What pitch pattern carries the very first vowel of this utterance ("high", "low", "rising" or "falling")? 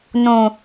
low